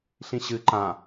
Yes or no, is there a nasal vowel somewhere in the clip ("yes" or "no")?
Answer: yes